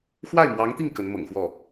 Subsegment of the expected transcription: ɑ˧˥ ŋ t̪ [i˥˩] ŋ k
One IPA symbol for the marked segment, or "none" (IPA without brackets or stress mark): i˥˩